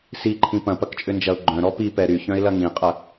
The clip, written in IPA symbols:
s i ǃʰ ĩ p ɐ̃ p ɐ k t͡ʃʼ ʏ n d͡ʒ ɐ ʊ̯ ɡ͡ǃ œ̃ ɾ ɔ p i p ɛ ɾ y ç œ̃ ɪ̯ l ɐ ŋ ĩ qʼ ɐ

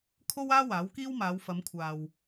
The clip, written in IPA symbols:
kʰ o˥ w aː˥ w aː˨˥ w k iː˥ w m aː˨˧ w f ɐ˨˧ m kʷʰ aː˨ w

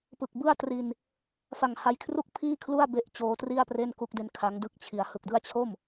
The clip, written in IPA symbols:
p ɯ˨˩ k̚ b ɯ˥˩ a̯ t r i˧ n | f a˨˩ ŋ h a˧ j kʰ r u˥˩ k̚ pʰ iː˥˩ kʰ l u˥˩ a̯ b e˦˥ ʔ t͡ɕ oː˦˥ t r i˥˩ a̯ p r e˥˩ n k u˦˥ k̚ d e˦˥ n kʰ a˦˥ ŋ d ɯ˥˩ k̚ t͡ɕʰ i˩˦ a̯ h ɯ˨˩ k̚ d ɯ˥˩ a̯ t͡ɕʰ o˥˩ m

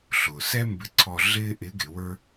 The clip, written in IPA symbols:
ɬ ʊː˩ s ɛ˥ m b ɪ˧˥ ǀʰ ɔ˧ ɮ ɪː˥ ʔ ɪ˧˥ ɡ ɪ˩˧ w ə˞˥

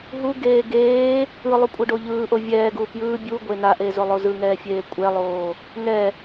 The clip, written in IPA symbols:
ɦ u ɡ eː ɡ eː | ɯ lˠ u kʷʼ ɯ ɖ o ʎ ɯː ʔ o vʲ ɛː ɡ uː p j ɯː bʲ u ɡʷ e n a ʔ e z o lˠ o z ɯ ŋ ɛː fʲ eː kʷʼ ɛ lˠ oː | ŋ ɛ

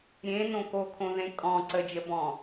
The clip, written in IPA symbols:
ɾʲ ẽ n õ k o kʰ õ ð ẽ kʼ ɔ̃ ǀ ə d͡ʒ ə b ɔ̃

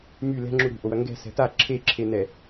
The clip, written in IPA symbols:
m y l ɛ̤ ŋ͡ǁ u ɾ ṳ ʔ o w ɐ ŋ ɡ ɛ̤ s ɛ̤ t a ǁʰ e ǁʰ e n ɛ

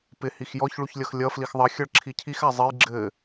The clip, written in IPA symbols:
p ɪ h i x j ɔ ç ɭ u ç lʲ ʌ x lʲ ʌ f l i x ðˤ ʌ xʲ ʌ ɭ ǁʰ i cʰ i x a zˤ ɘ j ɡ͡ǁ ɘ

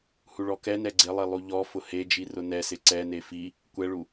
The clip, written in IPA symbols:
h u ɭ ɔ k ɛ n ɛ ɡ͡ǀ ɪ lˠ i lˠ u ʎ ɔ f ʊ h e d͡ʒ i r ʊ n ɛ s ɪ ǀ ɛ n e f i | kʷ ɛ ɭ u

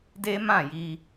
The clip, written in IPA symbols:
d e˦ m ã˦˨ j i˧

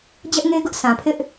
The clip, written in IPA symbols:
d͡ʑ ɛ˦ ʔ ŋ e˦ ɡ ʊ˦ ʔ s ã˨ pʰ ɪ˦ ʔ

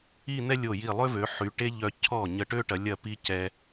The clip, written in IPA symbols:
i˥˧ n̪ ɛ˥ lʲ o˧˩ j i˧˩ lˠ ø˥ v ø˩˧ ħ y˩˧ ʈ e˥ ʎ œ˧ cʰ ɔ˧˩ ɲ ə˥˧ ʈ ø˥ ʈ ɐ˩˧ lʲ ɐ˥˧ p i˥ c ɛ˧

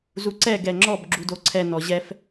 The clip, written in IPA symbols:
z u ǀ ɛ ɡ ɛ ŋ͡ǁ ɔ b ɡ͡ǁ u d o ǀʰ ɛ n ɔ ʑ ɛ f

